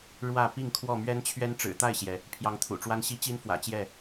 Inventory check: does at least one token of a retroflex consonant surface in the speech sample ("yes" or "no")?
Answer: yes